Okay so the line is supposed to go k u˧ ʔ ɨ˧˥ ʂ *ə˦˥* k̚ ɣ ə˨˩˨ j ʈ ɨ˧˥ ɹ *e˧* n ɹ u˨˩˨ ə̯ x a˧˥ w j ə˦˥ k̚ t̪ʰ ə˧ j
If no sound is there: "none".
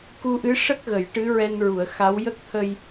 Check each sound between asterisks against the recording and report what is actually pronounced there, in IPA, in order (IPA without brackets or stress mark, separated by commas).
ə˦˥, ɛ˧